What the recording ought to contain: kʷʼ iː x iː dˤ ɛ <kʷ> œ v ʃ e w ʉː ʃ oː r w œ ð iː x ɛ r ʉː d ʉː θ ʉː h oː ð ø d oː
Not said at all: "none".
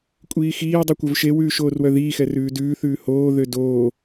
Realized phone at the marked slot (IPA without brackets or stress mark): kʷ